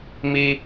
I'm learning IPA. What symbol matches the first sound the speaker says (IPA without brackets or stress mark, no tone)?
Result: m